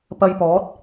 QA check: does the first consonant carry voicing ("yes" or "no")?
no